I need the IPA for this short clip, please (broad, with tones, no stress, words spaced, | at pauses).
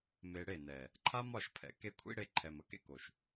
me˧ɽe˦˨nɛ˨ | ǃʰa˦mɒ˦˨ʃpʰɛ̰˨ke˧ kʷʰḭ˦ɽe˧ǃʰɛ˨m ə˧kḛ˦ko˨ʃ